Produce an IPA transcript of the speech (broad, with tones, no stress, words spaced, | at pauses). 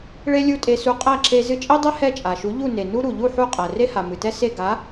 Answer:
ɭe˥lʲu˥˩tʼe˧su˧ qʼæ˥˩ǁe˧ zɨ˧t͡ʃʼe˥dˤɛ˥ hɛ˥˩t͡ʃʼa˩ʃu˩˥ ʎu˥˩ ne˩nu˥ ɾu˩ʎu˥˩ ħu˥˩qʼæ˩ re˥ha˩ mɨ˩tɛ˥se˥˩ ɡa˩˥